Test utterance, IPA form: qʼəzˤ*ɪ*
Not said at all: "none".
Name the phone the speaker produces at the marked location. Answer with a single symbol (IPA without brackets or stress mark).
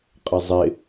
ɪ